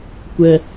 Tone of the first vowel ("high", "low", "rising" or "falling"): high